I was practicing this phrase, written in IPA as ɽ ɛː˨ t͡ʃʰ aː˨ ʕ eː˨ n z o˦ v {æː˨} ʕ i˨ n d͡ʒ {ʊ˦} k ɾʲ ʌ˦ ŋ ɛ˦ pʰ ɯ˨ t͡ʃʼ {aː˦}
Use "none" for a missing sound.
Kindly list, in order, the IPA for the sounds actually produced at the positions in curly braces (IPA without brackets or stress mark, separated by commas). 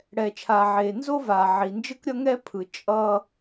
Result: aː˨, ɯ˦, ʌː˦